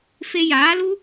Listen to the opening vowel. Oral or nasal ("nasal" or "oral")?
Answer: oral